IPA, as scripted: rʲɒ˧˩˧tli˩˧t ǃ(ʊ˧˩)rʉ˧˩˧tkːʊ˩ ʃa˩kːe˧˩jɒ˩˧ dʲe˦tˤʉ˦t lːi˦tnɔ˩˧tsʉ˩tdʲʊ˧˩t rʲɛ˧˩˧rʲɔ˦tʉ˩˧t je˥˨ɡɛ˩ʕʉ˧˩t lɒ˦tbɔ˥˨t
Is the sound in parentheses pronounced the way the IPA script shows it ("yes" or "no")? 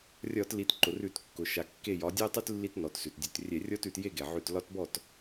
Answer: no